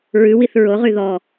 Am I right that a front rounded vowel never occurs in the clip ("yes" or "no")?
no